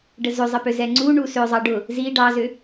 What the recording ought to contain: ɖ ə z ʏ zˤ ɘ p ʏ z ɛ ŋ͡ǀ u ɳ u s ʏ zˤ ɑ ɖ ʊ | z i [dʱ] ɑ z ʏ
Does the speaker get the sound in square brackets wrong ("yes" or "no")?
yes